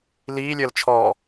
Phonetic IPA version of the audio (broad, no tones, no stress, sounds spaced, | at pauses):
l iː lʲ əː l t͡ʃʰ ɔː